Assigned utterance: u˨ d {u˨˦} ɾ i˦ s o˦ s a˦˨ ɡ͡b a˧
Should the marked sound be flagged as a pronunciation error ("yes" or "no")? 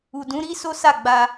yes